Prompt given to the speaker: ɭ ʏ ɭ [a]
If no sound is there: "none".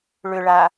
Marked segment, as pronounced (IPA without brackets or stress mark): a